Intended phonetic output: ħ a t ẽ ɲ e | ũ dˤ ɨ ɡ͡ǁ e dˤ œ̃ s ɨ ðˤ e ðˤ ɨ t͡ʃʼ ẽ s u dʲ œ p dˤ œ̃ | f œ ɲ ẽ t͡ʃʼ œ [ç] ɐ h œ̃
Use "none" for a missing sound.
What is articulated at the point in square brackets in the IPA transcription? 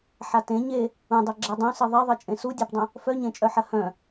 ħ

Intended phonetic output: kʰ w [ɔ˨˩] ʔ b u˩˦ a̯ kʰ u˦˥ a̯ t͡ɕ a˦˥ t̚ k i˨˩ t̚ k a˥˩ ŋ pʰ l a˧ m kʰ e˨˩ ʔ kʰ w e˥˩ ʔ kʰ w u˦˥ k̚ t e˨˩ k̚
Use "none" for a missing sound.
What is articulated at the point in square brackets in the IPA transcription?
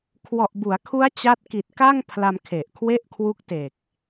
ɔ˨˩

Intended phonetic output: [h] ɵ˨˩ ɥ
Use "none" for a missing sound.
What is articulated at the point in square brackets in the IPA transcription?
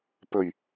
p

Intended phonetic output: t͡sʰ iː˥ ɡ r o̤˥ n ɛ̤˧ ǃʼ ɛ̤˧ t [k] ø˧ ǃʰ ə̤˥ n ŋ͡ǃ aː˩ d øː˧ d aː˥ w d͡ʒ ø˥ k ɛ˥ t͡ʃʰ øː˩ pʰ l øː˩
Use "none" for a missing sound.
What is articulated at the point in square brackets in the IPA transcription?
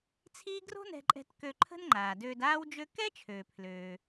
k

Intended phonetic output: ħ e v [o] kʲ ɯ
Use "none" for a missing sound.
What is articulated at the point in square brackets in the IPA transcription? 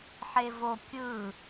o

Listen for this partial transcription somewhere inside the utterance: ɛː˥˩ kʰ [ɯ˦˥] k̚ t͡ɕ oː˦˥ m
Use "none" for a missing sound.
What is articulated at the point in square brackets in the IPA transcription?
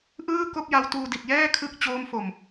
ɯ˦˥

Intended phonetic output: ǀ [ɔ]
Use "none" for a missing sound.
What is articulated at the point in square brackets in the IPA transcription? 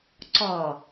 ɔ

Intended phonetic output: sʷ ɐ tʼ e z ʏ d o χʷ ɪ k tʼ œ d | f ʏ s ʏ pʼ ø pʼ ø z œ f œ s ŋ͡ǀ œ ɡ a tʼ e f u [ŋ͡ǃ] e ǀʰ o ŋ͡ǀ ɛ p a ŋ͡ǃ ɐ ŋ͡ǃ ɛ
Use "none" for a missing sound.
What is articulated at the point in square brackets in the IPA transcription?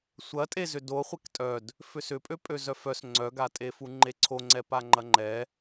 ŋ͡ǃ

